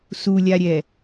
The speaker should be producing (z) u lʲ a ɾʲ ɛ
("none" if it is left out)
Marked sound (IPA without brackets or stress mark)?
s